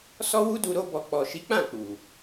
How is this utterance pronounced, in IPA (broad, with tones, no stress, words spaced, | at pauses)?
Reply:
sɔ˦wu˦du˧ ɾo˧bɔ˨ k͡pɔ˨ʃi˨˦k͡pã˦˨ k͡pu˨